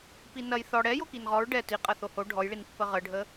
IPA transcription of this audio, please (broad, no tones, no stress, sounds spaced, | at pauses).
p i n ɐ j θ ɔ ɽ ɛ j o k i n ʁ ɔ ɹ ɖ ɛ t i qʼ ɐ θ o h o ɖʱ ɔ j ɭ i n pː ə ʁ ə ɖʱ ə